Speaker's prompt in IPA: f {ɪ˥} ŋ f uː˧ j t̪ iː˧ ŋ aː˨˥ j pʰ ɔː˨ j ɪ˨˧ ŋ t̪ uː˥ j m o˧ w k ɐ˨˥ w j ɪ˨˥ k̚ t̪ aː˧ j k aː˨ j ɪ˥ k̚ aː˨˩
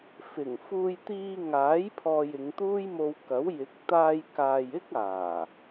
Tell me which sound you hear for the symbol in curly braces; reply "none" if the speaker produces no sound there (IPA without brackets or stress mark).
ɪ˨˩